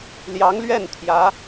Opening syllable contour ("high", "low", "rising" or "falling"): rising